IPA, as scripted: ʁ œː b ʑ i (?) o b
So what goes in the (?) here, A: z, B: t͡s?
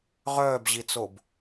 B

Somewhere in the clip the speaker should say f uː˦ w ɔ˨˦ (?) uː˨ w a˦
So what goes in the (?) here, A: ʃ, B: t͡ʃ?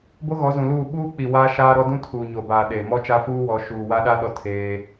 A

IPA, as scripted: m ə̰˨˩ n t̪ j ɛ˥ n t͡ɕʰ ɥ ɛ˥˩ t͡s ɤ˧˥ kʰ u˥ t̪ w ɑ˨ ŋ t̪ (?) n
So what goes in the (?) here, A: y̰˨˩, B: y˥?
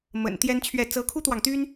B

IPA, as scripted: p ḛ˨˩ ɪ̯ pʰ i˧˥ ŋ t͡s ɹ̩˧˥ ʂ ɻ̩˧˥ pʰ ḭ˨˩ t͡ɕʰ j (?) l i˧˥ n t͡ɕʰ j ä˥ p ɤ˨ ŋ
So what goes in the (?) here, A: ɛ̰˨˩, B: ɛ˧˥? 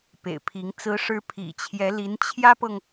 B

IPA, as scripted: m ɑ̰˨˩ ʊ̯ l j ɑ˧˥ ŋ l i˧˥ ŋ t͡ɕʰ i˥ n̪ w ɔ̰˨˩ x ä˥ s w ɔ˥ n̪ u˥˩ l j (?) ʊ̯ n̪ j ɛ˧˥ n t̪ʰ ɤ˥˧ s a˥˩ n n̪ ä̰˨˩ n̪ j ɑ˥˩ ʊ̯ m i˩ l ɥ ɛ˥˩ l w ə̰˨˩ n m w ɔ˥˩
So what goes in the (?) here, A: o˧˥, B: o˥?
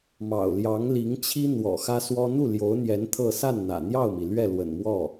A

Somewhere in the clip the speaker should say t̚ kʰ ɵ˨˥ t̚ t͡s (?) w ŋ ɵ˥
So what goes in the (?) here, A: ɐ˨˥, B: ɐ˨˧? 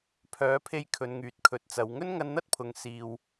B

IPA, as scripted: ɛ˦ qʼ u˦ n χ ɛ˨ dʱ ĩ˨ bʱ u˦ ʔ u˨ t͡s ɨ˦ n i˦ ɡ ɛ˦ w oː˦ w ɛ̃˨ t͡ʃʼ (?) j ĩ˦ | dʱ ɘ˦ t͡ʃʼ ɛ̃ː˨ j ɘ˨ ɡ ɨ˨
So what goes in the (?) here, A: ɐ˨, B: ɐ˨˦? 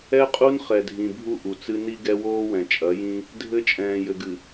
B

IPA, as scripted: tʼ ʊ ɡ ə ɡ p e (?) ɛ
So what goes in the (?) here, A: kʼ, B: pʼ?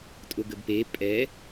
B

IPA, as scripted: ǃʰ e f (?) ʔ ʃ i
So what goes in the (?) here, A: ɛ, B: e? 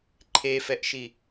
A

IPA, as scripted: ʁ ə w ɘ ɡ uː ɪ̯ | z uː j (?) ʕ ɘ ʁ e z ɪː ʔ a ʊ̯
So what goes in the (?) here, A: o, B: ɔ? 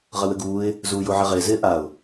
A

